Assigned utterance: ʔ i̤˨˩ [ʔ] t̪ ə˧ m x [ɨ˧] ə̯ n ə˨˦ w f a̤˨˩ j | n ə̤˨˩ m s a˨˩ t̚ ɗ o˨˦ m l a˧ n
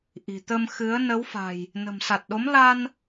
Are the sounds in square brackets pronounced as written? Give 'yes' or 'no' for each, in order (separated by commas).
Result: no, no